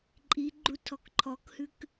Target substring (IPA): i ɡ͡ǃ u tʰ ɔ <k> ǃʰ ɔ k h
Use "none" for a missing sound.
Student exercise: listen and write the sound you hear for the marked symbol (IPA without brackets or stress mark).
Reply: k